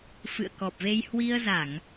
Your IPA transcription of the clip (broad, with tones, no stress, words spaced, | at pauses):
fɨ̰˧˨ə̯kɔ˨˩p̚ve˧j hwi˧ə̯za˧˩˨ŋ